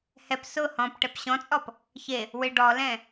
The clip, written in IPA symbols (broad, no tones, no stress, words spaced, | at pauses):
hɛp sʊ hɔ̃pʈɛp ɕɔ̃t͡sʼɔp | çe | wɪ ɖɔlɛ̃